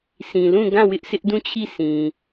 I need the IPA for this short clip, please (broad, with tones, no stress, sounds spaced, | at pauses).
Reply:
sʰ ĩ˨ l ũ˦˨ ɡ ã˦˨ w ɪ˦ ʔ s ɪ˦ ʔ d ũ˦˨ t͡ɕʰ i˦˨ sʰ ĩ˨